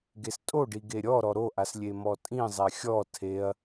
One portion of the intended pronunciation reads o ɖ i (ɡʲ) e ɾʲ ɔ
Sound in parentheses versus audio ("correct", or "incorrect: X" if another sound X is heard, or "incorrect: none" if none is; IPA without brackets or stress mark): incorrect: ɡ